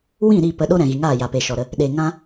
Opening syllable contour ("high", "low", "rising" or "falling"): falling